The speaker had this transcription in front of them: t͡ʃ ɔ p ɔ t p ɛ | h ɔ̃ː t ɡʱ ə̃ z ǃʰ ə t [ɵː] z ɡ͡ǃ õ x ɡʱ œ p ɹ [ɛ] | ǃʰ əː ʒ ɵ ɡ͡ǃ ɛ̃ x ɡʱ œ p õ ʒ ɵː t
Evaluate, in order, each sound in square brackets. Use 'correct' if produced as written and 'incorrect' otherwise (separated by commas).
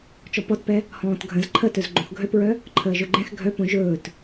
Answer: incorrect, incorrect